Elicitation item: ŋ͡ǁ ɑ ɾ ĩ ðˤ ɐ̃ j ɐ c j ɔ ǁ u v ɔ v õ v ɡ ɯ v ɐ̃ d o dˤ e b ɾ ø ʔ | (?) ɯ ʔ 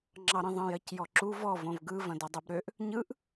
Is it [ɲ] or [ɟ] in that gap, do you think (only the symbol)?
ɲ